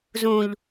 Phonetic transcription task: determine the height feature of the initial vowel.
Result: high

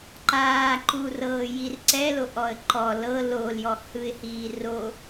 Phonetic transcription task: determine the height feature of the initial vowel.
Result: low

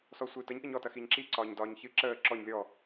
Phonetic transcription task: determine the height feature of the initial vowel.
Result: mid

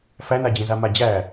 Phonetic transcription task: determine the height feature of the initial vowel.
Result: low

